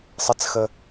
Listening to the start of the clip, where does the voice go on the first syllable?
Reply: high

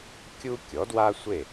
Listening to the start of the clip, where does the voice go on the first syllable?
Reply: high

